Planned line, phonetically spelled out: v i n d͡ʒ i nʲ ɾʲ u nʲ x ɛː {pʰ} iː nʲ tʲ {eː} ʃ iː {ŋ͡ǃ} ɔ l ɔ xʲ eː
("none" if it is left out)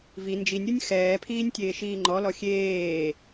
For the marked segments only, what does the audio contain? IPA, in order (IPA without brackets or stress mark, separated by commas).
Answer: pʰ, eː, ŋ͡ǃ